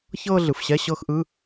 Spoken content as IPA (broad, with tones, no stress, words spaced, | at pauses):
çɤː˥˧ɮɯ˩˧˩fɕɛ˧˥˧ ɕɤ˥˧x ʔɯ˧˥˧